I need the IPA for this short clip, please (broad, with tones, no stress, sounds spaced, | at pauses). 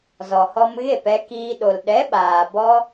z ɔ˨ h ɔ˧ m ɣ e˦˨ p ɛ˧ k iː˧ ɗ o˨ l ɗ ɛ˨˦ ɓ aː˨ b ɔ˦